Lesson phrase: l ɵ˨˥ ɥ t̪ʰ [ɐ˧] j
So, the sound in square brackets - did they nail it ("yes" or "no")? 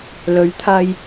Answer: yes